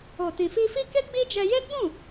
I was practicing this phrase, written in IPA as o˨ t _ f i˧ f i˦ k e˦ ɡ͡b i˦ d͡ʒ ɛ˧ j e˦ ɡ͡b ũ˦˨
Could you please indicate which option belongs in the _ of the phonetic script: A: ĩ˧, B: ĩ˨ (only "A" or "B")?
B